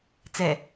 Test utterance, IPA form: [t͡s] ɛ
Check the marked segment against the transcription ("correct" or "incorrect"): correct